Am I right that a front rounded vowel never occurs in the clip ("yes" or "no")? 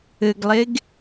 yes